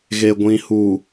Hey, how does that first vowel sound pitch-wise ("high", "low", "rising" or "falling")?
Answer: low